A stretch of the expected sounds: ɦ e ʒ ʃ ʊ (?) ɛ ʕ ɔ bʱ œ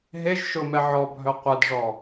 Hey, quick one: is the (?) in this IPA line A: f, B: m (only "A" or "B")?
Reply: B